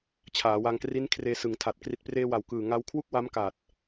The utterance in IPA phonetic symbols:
t͡ɕʰaː˩˦wa˧ŋ kri˦˥nkʰreː˧sɯ˩˦ŋtʰa˨˩t̚ kri˨˩t̚preː˧ wa˨˩wkɯː˨˩ ŋa˧w kʰwu˥˩k̚wa˦˥mka˨˩t̚

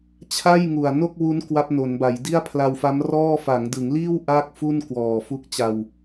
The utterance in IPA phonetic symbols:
t͡ɕʰa˥˩jŋu˨˩a̯no˥˩k̚wu˦˥n kwa˦˥p̚no˩˦nba˩˦jdi˥˩a̯ pʰla˧wfa˦˥mrɔː˥˩ fa˩˦ŋdɯ˩˦ŋliː˥˩w ʔaː˥˩k̚fu˥˩n kwɔː˨˩fu˦˥k̚t͡ɕa˧w

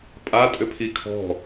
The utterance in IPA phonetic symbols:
pʼa tʼʏpʰikʰɔ̤

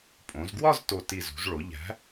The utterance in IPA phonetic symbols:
pʼõ˩˧zɡwɒ˥˧zto˨˩ti˨˩ zṳ˩˧zɭo˩˧ʎæ̤˨˥

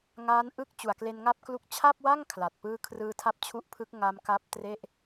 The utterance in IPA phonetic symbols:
ŋaː˦˥nʔɯ˥˩k̚ t͡ɕu˨˩a̯kle˧nŋa˥˩p̚klu˦˥k̚ t͡ɕʰa˥˩p̚wa˥˩ŋ kʰla˨˩t̚pɯː˥˩ kʰrɯː˧tʰa˦˥p̚t͡ɕʰu˦˥ʔpʰɯ˦˥k̚ ŋa˦˥m ka˦˥p̚tre˥˩ʔ

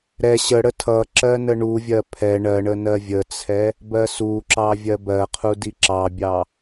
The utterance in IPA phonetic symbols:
ɾɛ ɕəɽə tʰʌǁɜ nəɳuvʲɜ pʰɛ ɳɜɳənɜ vʲət͡sʰɛ | bɜsuǁɑ vʲɜbɜqʰudi ǁɑbʲɑ

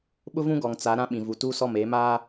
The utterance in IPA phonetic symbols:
ɓʊ˦vũ˦ɡɔ˨ŋ t͡sa˨˦ ɾã˦ɓĩ˨ vu˨tuː˦sɔ˦˨m eː˨˦maː˦

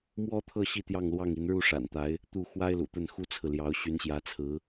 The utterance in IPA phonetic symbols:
mwɔ˥t̪ʰɤ˥˩ ɕi˥t̪jɑ˥˧ŋlwɑ˥˩ŋi˧˥n ɻu˥˩ʂa̰˨˩nt̪a˧˥ɪ̯ | t̪u˥˩ xwa˥ɪ̯lṵ˨˩t̪ə˥˩n xu˥t͡sʰɹ̩˨ljɑ˧˥ʊ̯ ɕy˧˥nɕjä˧˥t͡sʰɹ̩˧˥

